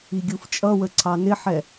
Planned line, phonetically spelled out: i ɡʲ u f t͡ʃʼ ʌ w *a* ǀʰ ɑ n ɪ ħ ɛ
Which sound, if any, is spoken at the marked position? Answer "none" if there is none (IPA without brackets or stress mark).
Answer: ə